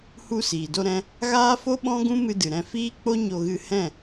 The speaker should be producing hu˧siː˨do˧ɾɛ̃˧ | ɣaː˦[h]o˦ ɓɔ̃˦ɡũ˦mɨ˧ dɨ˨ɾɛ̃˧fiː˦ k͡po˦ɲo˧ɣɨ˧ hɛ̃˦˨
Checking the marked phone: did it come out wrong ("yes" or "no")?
yes